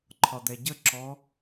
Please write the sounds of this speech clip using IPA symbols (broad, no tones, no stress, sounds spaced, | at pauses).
ǃʰ ɒ d̪ ɛ ɟ ə ǁ ɔ